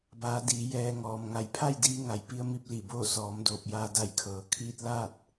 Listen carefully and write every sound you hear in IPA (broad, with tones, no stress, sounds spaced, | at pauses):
b aː˩˧ d iː˩˧ j ɛː˧ ŋ ɔː˩ m ŋ a˩˧ j pʰ a˥˨ j d iː˧ ŋ a˩˧ j p i˧ ə̯ m i˥˨ p̚ l i˧˩ b oː˥˨ s ɔː˩˧ m d oː˧˩ p̚ j aː˧ d a˧˩ j kʰ ɤː˩ kʰ iː˧ t̚ l a˥˨ t̚